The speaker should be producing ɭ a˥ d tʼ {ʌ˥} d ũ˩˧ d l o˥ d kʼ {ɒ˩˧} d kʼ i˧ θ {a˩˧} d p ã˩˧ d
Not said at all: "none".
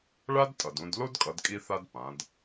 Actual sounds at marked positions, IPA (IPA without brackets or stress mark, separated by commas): ʌ˩, ʌ˩˧, a˧